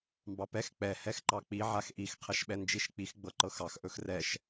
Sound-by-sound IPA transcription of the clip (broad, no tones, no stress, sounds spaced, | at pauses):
m b ɑ p ɛ x k͡p ɛ h ɛ x ǃ ɑ k͡p i ʕ a x ʔ i x qʰ ɛ ʃ ɓ ɛ n d͡ʒ i ʃ k͡p i x ɡ͡b ɤ ǃ ɤ x ɑ x ʔ ɵ x r ɛ ʃ